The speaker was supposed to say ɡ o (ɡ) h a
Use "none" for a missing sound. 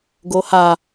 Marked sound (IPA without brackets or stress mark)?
none